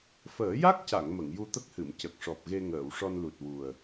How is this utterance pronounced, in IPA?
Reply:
f əː˨˩˦ j a˦˥ k̚ c a˨˩˨ ŋ m ə˨˩˨ ŋ j u˧ t̪ ə˦˥ k̚ h ɨ˨˩˨ m c ə˨˩ k̚ ʂ ɔ˨˩ p̚ ɣ e˧ ŋ əː˨˩˨ w ʂ ɔ˧ n l u˨˩ t̚ w u˨˩ ə̯

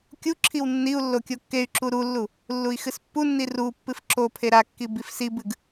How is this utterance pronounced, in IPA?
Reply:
kʲ u ǁʰ i w nː i u̯ lː o kʲ o kː e y̯ ǁ u ɾ u lː u | lː u i̯ x ɨ s pː u nː i r u pː ɨ f ǁ o pʰ e ɾ a kː i b i f s i b ɨ ɡ

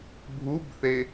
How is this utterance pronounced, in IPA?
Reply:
bʱ u b θ e

